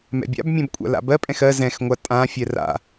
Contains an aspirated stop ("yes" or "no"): no